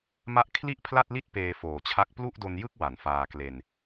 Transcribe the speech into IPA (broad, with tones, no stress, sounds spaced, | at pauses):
m a˦˥ ʔ kʰ l i˥˩ ʔ pʰ l a˥˩ t̚ l i˥˩ t̚ p eː˧ f oː˨˩ t͡ɕʰ a˦˥ k̚ p l u˥˩ ʔ d o˧ n j ɯ˥˩ k̚ w a˨˩ n f aː˧ k l e˧ n